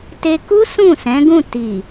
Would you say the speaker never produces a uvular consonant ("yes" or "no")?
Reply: yes